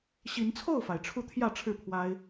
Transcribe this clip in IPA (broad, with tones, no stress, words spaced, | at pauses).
ɕi˨˦nt͡sʰo˥˨ʊ̯fa˩ɪ̯ ʈ͡ʂʰu˥˨t̪ʰjä˥˨ʈ͡ʂʰɻ̩˥˨pʰwa˦ɪ̯